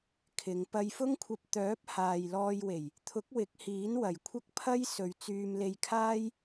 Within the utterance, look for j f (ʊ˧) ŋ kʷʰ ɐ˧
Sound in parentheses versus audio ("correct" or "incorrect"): incorrect